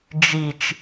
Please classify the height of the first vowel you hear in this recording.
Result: high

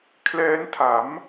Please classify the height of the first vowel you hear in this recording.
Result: mid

